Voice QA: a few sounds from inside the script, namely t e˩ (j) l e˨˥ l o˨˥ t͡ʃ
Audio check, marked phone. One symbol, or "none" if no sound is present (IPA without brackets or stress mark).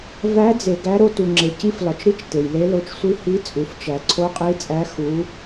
j